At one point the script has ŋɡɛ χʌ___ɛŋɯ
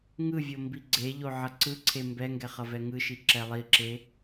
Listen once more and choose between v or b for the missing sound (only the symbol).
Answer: v